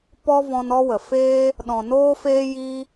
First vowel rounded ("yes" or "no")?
yes